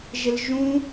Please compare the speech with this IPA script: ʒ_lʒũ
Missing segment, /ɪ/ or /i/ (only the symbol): ɪ